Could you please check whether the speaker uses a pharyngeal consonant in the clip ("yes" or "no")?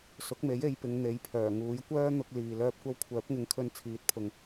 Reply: no